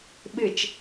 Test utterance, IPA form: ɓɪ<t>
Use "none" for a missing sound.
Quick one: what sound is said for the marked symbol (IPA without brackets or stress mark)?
t͡ʃ